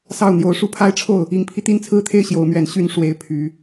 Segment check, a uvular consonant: absent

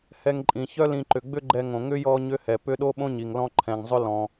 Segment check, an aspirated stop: present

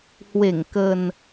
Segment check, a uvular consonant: absent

